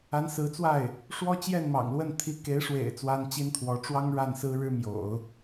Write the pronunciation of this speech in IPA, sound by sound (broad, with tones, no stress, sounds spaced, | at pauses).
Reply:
a˧˥ n s ɹ̩˧˥ t͡s w a˥˩ ɪ̯ | ʂ w ɔ˥ t͡ɕ j ɛ˥˩ n m ɑ̰˨˩ ŋ l w ə˥˩ n t̪ʰ i˧˥ k e˧˥ ɪ̯ ʂ w ḛ˨˩ ɪ̯ t͡s w a˥ n t͡ɕ i˥ n t̪ʰ w ɔ˧˥ ʈ͡ʂ w ɑ˥ ŋ ɻ a˥˩ n s ɹ̩˥ ɻ ɻ̩˥ m j o̰˨˩˦ ʊ̯